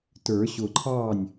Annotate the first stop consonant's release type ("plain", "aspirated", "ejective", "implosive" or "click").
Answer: plain